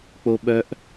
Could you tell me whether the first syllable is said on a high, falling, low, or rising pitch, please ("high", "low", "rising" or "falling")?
high